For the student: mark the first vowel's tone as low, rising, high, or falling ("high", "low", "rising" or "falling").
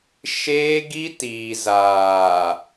high